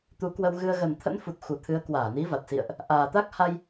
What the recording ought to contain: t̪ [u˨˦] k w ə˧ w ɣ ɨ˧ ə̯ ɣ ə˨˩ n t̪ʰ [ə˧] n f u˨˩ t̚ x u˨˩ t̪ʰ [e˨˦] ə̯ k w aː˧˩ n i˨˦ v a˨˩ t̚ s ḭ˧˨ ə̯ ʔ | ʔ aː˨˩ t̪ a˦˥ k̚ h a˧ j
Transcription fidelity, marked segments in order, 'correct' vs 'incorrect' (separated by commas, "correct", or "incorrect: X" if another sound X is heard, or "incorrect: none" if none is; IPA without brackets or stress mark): correct, incorrect: ə̰˧˥, incorrect: ɨ˨˦